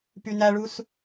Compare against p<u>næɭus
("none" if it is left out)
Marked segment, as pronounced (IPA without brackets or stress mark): y